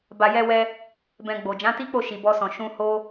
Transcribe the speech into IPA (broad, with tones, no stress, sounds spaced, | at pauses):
b a˨ j ɛ˧ w ɛ˧ | b ɛ̃˧ ɡ͡b o˨ d͡ʒ ã˨˦ t i˦ k͡p o˦˨ ʃ i˨ b ɔ˧ s ɔ̃˨ ʃ ũ˧ h o˦